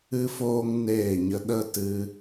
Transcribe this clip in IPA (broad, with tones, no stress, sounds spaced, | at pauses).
ɨ˧ f oː˧ ŋ n eː˦˨ ɲ ə˧ ɗ ə˦ t ɨ˧